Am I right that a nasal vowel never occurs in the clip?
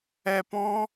no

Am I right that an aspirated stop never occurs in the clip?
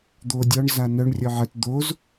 yes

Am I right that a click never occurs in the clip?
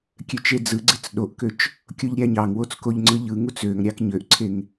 no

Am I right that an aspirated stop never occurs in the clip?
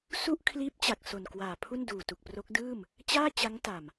no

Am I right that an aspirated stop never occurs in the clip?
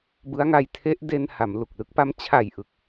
no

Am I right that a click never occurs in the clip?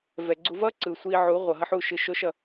no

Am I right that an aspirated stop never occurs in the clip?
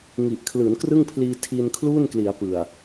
no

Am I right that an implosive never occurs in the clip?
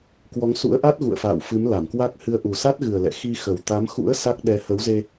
no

